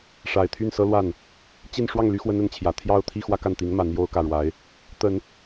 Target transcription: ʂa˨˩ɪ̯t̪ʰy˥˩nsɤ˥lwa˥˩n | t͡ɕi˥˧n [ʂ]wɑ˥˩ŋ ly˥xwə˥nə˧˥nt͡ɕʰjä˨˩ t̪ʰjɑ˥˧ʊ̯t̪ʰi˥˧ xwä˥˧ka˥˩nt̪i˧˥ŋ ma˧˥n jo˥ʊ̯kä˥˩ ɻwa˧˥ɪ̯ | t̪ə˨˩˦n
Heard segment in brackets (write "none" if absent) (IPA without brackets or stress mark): ʂ